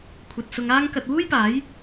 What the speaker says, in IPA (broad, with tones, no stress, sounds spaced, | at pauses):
kʷʰ ɐ˧ t̚ s ʊ˧ ŋ aː˥ ŋ k ɐ˧ t̚ w uː˥ j p aː˨˥ j